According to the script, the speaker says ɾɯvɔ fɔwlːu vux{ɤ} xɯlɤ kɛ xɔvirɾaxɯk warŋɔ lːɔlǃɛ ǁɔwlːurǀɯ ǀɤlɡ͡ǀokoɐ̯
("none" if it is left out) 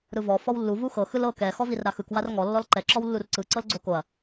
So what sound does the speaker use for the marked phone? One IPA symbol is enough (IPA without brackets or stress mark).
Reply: ɤ